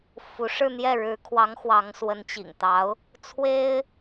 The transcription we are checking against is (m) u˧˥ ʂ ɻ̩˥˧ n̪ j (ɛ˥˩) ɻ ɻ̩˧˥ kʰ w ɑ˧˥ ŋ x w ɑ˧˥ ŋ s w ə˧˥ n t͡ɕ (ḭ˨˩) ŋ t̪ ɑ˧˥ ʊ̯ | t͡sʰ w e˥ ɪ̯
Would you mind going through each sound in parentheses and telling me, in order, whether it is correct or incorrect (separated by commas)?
incorrect, correct, correct